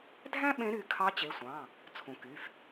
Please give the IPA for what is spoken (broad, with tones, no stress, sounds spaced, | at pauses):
dʱ æ̃˥ ɓ ẽ˧˥ ɾ y˩˧˩ kʰ ɑ˧˥ t͡ɕ e˩˧˩ sʷ ɑ̃˩˧˩ | t͡sʰ ũ˩ k y˩˧˩ f